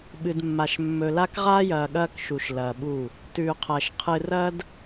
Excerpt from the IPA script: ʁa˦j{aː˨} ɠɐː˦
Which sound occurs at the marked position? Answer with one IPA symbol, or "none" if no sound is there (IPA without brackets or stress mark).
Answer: ɐː˨